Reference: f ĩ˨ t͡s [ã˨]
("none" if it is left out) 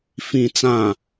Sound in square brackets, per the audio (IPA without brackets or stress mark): ã˨